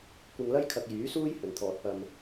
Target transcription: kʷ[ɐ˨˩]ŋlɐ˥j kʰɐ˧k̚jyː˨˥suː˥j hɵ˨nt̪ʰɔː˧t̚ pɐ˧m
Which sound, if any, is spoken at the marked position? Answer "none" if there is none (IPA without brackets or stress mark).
ɐ˧